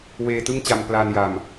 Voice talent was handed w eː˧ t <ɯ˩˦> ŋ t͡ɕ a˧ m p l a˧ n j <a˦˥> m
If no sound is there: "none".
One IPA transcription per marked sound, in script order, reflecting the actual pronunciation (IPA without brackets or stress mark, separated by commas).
ɯ˥˩, a˨˩